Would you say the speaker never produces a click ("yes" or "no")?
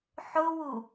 yes